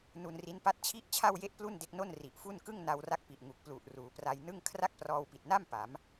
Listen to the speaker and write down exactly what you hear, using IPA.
n u˧ n r i˦˥ n p a˥˩ t̚ t͡ɕʰ i˥˩ ʔ t͡ɕʰ a˥˩ w j e˥˩ ʔ p l u˥˩ n d e˦˥ k̚ n o˥˩ n r i˨˩ ʔ f u˥˩ n k ɯ˥˩ ŋ n a˧ w r a˥˩ k̚ p i˨˩ ʔ ŋ u˨˩ k̚ p l u˨˩ ʔ r uː˩˦ p r a˧ j n ɯ˥˩ ŋ kʰ r a˥˩ k̚ p r ɔː˧ w p i˨˩ t̚ n a˥˩ m p a˩˦ m

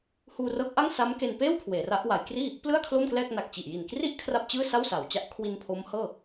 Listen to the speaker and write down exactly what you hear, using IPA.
h uː˧ r ɤː˦˥ k̚ ʔ a˥˩ ŋ s a˦˥ m k e˧ n p eː˥˩ w kʰ w eː˩˦ r a˦˥ ʔ w a˩˦ j k r iː˥˩ | p l ɯ˥˩ a̯ kʰ l o˥˩ m k l ɛː˥˩ k̚ n a˨˩ k̚ t͡ɕ i˨˩ ʔ j i˨˩ n k r i˥˩ ʔ kʰ r a˥˩ p̚ t͡ɕ ɯː˥˩ s a˥˩ w s a˩˦ w t͡ɕ a˦˥ ʔ kʰ w i˧ n pʰ o˦˥ m h ɤː˥˩

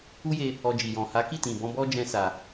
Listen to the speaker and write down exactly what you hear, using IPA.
u˦ j e˧ | ɔ˧ d͡ʒ i˨ j ɔ̃˨ h a˨˦ k i˦˨ t ĩ˨ b ɔ̃˧ b ɔ˦ d͡ʒ ɛ̃˧ s a˨

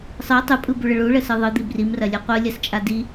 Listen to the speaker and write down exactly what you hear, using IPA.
sˤ ɯ tˤ u pʼ ɯ b u ɭ ə ɭ u ɭ ə s ɯ ðˤ ɯ d̪ i b r i m r ɐ lʲ ɯ qʷ ɯ lʲ ɐ s t͡ʃʼ a d i

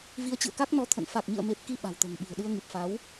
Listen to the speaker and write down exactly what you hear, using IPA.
v i˧ ə̯ t͡ɕ ɨ̰˧˨ ə̯ k a˦˥ k̚ n ɔ˧ t̪ʰ ə̰˧˨ n f a˨˩ k̚ ɲ ɨ̰˧˨ ə̯ m e˨˩ p̚ k i˧ ɓ a̤˨˩ w t̪ ə̤ː˨˩ ŋ ɓ i̤˨˩ ə̯ ɗ ɨ˧ ə̯ ŋ ɨ˨˩ p̚ f a˨˦ w

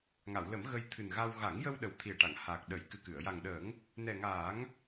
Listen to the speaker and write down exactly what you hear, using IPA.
ŋ a˨˩˨ w l ə˨˩˦ m ɣ ə˧ j t̪ʰ ɨ˨˩ n ɣ a˧ w ɣ a˨˩˦ ŋ j ə˧ w ɗ ə˨˩ w t̪ʰ i˨˩ ə̯ ʈ a˨˩˨ ŋ h aː˨˩ k̚ ɗ ə˨˩˦ j k ɨ˨˩ k ɨ˨˩˨ ə̯ j a˨˩ ŋ ɗ əː˨˩˦ ŋ | n ɛ˨˩ ŋ aː˨˩˦ ŋ

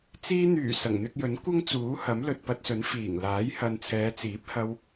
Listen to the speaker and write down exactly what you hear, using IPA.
t͡s iː˧ n̪ yː˨˩ s ɐ˨˩ ŋ n̪ ɪ˧ k̚ j ɵ˨˥ n kʷ ɐ˥ ŋ t͡s uː˨˥ h ɐ˨˥ m l ɵ˨ t̚ p ɐ˧ t̚ s ɵ˨˥ n f iː˨˩ ŋ l aː˨˥ j h ɐ˨ n t͡sʰ ɛː˨˧ t͡s iː˨˥ p̚ h ɐ˧ w

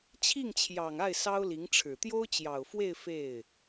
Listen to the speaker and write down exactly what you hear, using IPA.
t͡ɕʰ i˥˩ ŋ t͡ɕʰ j ɑ˨˩ ŋ a˥˩ ɪ̯ s ɑ˥ ʊ̯ l i˧˥ ŋ ʈ͡ʂʰ ɻ̩˨˩ t̪ j o˥ ʊ̯ t͡ɕ j ɑ˨˩ ʊ̯ f w e˥˧ ɪ̯ f e˥˩ ɪ̯

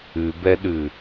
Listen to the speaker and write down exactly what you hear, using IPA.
ʉ b ɛ ɗ ʉ

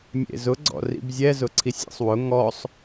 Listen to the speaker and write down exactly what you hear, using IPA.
mʲ ḛ z ʊ ɡ͡ǀ ɔ̰ r ḭ b zʲ ɛ z ʊ ǀʰ i sʲ ḛ sˤ w ʊ ŋ ɔ sˤ

